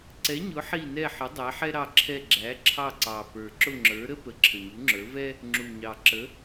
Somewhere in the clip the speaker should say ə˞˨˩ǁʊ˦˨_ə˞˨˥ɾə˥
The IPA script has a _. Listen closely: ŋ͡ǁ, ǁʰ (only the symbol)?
ŋ͡ǁ